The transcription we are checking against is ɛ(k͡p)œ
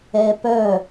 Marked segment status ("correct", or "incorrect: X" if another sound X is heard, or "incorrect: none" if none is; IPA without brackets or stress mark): incorrect: p